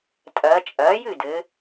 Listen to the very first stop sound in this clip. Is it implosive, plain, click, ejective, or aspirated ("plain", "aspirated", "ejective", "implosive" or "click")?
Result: ejective